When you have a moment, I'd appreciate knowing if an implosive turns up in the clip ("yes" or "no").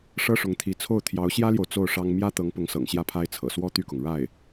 no